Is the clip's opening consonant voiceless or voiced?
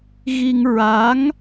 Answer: voiced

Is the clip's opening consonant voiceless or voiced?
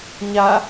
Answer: voiced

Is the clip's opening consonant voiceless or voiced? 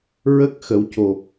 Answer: voiced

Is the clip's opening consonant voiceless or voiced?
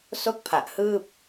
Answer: voiceless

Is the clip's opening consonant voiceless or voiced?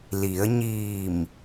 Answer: voiced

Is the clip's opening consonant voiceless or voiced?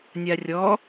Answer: voiced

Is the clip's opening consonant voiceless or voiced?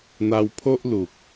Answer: voiced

